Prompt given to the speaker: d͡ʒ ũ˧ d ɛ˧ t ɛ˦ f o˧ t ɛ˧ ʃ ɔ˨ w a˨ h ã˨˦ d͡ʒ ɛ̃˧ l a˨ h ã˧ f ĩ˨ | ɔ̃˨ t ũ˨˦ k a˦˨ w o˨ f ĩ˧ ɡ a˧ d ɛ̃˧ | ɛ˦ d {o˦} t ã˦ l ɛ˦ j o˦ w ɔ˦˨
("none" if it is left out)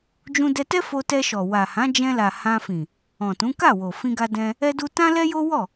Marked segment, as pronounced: u˦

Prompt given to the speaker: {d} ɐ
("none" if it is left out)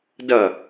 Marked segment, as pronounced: d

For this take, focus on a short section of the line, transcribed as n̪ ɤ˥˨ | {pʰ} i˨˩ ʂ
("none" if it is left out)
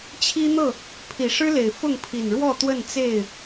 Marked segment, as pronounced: pʰ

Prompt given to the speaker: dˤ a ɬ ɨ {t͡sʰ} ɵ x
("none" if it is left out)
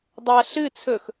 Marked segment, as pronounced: t͡sʰ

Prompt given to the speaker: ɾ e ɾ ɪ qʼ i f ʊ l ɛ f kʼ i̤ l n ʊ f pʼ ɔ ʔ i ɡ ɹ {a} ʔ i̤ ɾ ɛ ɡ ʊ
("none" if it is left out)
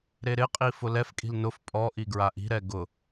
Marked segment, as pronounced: a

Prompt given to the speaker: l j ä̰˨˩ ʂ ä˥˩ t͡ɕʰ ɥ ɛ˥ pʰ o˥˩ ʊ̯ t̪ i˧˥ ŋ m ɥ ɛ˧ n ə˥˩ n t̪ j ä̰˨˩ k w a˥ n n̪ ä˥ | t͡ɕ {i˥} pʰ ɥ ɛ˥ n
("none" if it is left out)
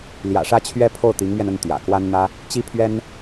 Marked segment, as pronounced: i˥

